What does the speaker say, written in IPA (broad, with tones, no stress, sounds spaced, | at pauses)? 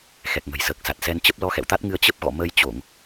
x ɛ˨˩ k̚ ŋ ə̤˨˩ j s əː˨˩ k̚ s a˨˩ t̚ s ɛ˧ n t͡ɕ ə˦˥ p̚ l ɔ˧ x ɛ̰˧˨ w t̪ a˦˥ t̚ ŋ ɨ˧ ə̯ t͡ɕ ə˦˥ p̚ ɣ ɔ̰˧˨ m ə˧ j t͡ɕ o˧˩˨ ŋ